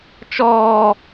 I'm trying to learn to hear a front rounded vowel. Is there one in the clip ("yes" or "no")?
no